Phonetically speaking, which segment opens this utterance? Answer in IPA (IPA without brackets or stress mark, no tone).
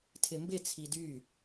tʰ